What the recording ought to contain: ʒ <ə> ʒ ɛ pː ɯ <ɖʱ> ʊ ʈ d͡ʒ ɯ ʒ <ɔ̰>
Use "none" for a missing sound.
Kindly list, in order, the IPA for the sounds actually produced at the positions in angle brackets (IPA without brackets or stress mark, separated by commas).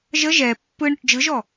ə, ɳ, ɔ